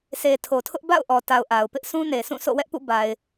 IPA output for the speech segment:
s e˨ tʰ o˨ tʰ ʊ˦ ʔ b a̰˦˨ ʊ̯ ʔ ɔ˨ t a˨ ʊ̯ ʔ a˨ ʊ̯ p ɪ˦ ʔ s ũ˦ n e˨ s ũ˦˨ s o̰˦˨ w ɛ˦ ʔ p ṵ˦˨ b a˨ ɪ̯

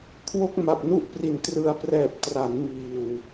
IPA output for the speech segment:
kʰ w o˥˩ k̚ m a˨˩ p̚ n u˥˩ ʔ p r i˨˩ n t r ɯ˧ a̯ p r ɛː˨˩ p̚ t r a˩˦ n m iː˨˩ w

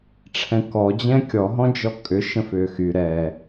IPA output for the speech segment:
ʈ͡ʂʰ ɛ̃ k ɔ d͡ʑ ɛ̃ kʲ ɔ ɦ ɔ̃ d͡ʒ ɔ kʼ ʏ ʃ ə̃ f ʏː x y ɾ ɛ

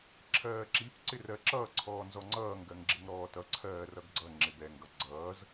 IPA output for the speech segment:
ǁʰ ɜː ǁ i p ǀ ɪ r ɜ ǁ ʌː ǀʰ ɔː n z ɔ ŋ͡ǀ ʌː ŋ ɡ ɜ ŋ ɡ͡ǁ ɪ ŋ ɾ ɔː t ʌ ǀʰ ɜː r ʌ ɡ ɡ͡ǀ ʌ ŋ͡ǁ ɪ b ɛ ŋ ɡ ʌ ɡ͡ǀ ʌː z

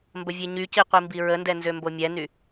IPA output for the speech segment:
m b ə vʲ e ɲ y c i qʷ i m b i ɹ ə n d ɛ n z ø m b o mʲ ɛ n y

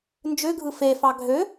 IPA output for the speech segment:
n d͡ʒ ø ɡʱ ɯ f e f ɑ ɡʱ ø

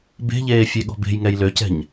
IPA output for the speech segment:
b e̤ ʎ eː fʲ e ɠ ɔ̤ b e̤ j ŋ ɛ j l ø c ɛ̤ ɲ

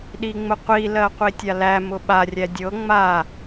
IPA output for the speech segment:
ɗ i ŋ͡m ʊ qʷ i l ɜ qʷ i tʲ a l æ m ʊ ɓ a rʲ æ dʲ ɤ ŋ͡m a

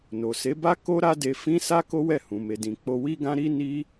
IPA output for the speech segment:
n o˨ s e˨˦ b a˦ k o˦ ɾ a˦ d e˧ f ĩ˦ s a˦ k o˦ w ɛ˦˨ h ũ˨ m e˨ d ĩ˨ k͡p o˧ w i˦ ɡ ã˦ ɾ i˦ n i˦

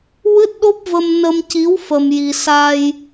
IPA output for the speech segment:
w ɨ˦˥ t̚ ɗ o˦˥ p̚ v ə˧ m n ə˧ m c i˧˥ w f ə˧ m j i˧ s a˧ j

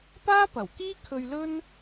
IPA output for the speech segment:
p aː˥ p ɐ˨˩ w k iː˥ kʰ ɵ˧ ɥ l ɵ˥ n

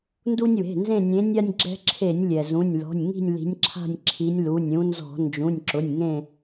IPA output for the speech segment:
n d u˦ nʲ w e̤˩˧˩ n z ẽ˦˨ nʲ ẽ˨˦ nʲ a˦ nʲ ɡ͡ǁ ɛ̤˦ ǁʰ e˧˩˧ nʲ lʲ ɛ˩ z ũ˩˧˩ nʲ l ɔ̤˩˧˩ nʲ ŋ i̤˦˨ nʲ l i̤˨˦ nʲ ǁʰ a̤˦˨ nʲ ǁʰ i˨˦ nʲ l u˩˧˩ nʲ ũ˨˦ n z ɔ̤˧˩˧ n d͡ʒ ũ˩˧˩ nʲ ǁ ʊ˩˧˩ nʲ ŋ ẽ˦˨

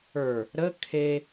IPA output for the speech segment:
ə˞ | ɾ ə kʰ e

